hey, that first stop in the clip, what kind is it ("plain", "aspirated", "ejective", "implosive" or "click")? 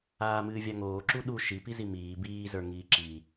click